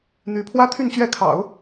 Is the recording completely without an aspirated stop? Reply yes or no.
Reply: no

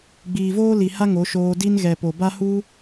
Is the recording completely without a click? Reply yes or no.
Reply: yes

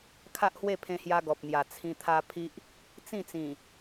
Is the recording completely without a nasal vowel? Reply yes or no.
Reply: no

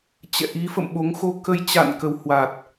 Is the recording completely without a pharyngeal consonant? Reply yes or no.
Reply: yes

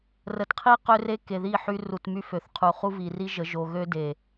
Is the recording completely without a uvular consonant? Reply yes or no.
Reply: no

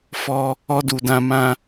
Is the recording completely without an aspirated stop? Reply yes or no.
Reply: yes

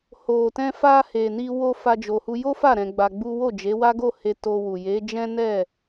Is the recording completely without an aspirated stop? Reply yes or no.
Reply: yes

